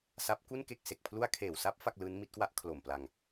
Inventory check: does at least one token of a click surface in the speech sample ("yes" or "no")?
no